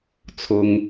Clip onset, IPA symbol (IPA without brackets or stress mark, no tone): t͡sʰ